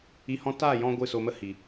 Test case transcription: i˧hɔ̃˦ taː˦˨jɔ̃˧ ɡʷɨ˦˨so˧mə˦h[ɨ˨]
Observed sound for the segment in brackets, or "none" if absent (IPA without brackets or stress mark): i˨